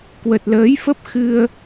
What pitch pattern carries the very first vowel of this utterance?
low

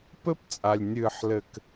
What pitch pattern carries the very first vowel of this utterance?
high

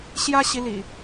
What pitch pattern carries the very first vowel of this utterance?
high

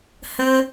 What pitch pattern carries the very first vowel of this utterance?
high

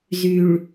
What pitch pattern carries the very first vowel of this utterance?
low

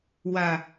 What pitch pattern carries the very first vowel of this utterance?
low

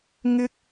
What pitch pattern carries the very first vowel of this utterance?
high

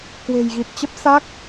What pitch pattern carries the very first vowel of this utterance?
low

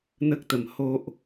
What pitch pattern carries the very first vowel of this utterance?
high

